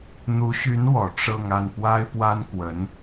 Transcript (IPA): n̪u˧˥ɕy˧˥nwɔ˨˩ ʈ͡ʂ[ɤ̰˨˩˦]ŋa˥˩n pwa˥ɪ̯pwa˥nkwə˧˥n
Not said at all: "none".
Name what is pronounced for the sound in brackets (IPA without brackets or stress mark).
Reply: ɤ˥˧